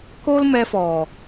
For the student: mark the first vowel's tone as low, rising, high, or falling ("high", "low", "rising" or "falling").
high